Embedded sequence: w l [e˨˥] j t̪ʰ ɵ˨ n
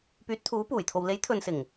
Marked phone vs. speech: correct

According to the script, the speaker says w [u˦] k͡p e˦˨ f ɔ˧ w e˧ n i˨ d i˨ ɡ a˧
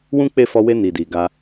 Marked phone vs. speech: incorrect: ũ˦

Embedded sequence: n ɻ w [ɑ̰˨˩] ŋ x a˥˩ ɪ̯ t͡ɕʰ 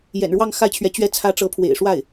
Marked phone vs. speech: incorrect: ɑ˥˧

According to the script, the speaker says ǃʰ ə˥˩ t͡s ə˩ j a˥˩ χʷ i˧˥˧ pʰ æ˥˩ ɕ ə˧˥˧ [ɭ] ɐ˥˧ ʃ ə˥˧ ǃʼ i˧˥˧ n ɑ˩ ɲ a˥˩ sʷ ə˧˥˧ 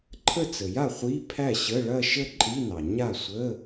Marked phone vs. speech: correct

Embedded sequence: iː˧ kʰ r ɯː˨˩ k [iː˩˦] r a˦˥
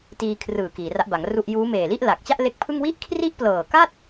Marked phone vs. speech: correct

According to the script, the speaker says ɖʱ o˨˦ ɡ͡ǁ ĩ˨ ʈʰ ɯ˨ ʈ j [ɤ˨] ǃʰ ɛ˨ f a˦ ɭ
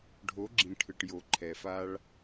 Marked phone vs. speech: incorrect: o˨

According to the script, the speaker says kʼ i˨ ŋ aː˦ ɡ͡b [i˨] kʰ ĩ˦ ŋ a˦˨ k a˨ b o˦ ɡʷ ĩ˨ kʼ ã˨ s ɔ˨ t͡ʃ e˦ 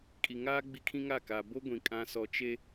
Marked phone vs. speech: incorrect: i˦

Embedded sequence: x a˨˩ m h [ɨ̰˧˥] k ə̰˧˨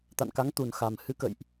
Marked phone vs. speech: incorrect: ɨ˨˦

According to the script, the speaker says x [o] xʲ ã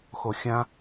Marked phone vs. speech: correct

